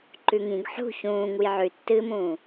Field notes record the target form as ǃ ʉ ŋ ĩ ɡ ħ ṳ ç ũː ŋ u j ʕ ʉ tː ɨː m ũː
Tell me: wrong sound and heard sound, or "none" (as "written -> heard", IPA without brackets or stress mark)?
none